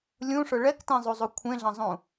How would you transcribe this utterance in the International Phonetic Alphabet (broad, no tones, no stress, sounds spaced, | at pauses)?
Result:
lʲ ũ ʂ ʊ ɭ ɛ k t ẽ zˤ u zˤ u kʷʰ ẽ ɮ ɐ̃ zˤ ũ